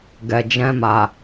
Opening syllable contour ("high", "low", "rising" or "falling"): low